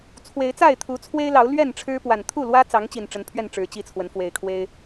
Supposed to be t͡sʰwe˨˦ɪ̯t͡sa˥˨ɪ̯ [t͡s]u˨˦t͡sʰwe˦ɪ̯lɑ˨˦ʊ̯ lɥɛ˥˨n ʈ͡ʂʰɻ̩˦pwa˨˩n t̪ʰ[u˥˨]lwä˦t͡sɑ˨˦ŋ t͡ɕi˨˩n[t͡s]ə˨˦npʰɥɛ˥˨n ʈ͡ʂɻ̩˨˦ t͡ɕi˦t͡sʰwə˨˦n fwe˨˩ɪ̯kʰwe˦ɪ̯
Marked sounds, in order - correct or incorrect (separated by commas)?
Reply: incorrect, correct, incorrect